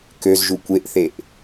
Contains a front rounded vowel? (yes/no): yes